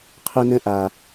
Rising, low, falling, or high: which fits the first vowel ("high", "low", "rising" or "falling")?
high